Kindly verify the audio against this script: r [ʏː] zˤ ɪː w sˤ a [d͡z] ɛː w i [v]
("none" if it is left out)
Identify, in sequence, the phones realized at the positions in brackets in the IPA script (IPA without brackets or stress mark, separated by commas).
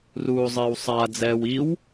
uː, d͡z, w